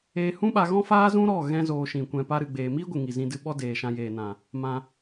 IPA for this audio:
eː˧ h ũ˦ ɓ a˧ ɣ ɔ̃˦ f aː˦ z ũ˦ ɾ ɔ˦˨ ɣ ɛ̃˦ z oː˧ ʃ ĩ˨ kʷ ɛ̃˧ p a˦ ɾ ɨ˧ ɡ͡b eː˧ m iː˦ ɡʷ ɨ˨ ŋ i˨ z ĩ˧ d ɨ˧ ɓ ɔ˦ d eː˨ ʃ ã˧ j eː˨ n ã˨ | m ã˧

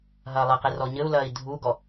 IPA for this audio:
ɦ ɐː lˠ ɘ q i r ɔ ɲ ɘ u̯ l ɐː i̯ dʱ u ɡ ɔ

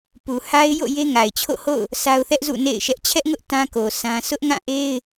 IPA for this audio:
p u˨ h a˦ ɪ̯ j o̰˦˨ j e˦ ŋ a˨ ɪ̯ t͡ɕʰ o̰˦˨ h o̰˦˨ ʊ̯ | s a˦ ʊ̯ θ ɛ˦ ʔ z ṵ˦˨ n ḛ˦˨ ɪ̯ ʃ ɛ˦ ʔ t͡ɕʰ ɛ˦ ʔ ŋ ʊ˦ ʔ t ã˦ k o˨ s ã˦ sʰ ʊ˦ ʔ ŋ ã˦˨ ʔ e˦ ɪ̯

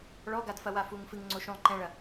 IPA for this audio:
ɭ ɔ ɡ a d f ɐ w a f u ŋ f ɨ ŋ ŋ͡ǀ o ʃ õ lˠ ǃ ɛ̃ ɭ ɐ

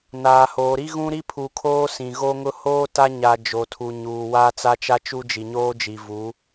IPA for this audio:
n aː˨ h oː˨ ɾ i˦ ɣ ũ˦ ɾ i˦ pʰ u˨ kʰ oː˦ s ĩ˨ ɣ o˦ ŋ ʊ˦ h oː˦ t a˦ ɲ a˨ d͡ʒ o˨ tʰ u˨ ɲ uː˨ w aː˦ t͡s a˦ t͡ʃ a˦ t͡ʃ u˦ d͡ʒ i˨ ɲ oː˦ d͡ʒ i˨ v u˨˦

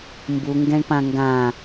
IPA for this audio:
m b u ŋ ɡ ɛ̃ ɳ p ã ŋ ɡ ã

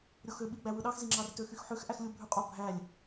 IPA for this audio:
ɾʲ o x ø ɓ i ɡ͡b æ w ɯ ɗ ɑ x z i ŋ͡ǁ ɑ r t ø x y x ħ ø x ʔ æ x lʲ u bʱ y qʼ o bʱ æ lʲ

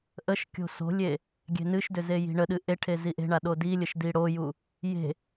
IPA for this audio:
ʔ ə ʃ kʲ o̤ s o̤ lʲ e | ɡʲ e̤ n ɨ ʃ d ʏ z e j i̤ ɳ ə ɗ ɨ ʔ e ʈʰ e z i ʔ e̤ ɳ a ɗ o d i lʲ ə ʃ d i ɽ o j u | j e̤

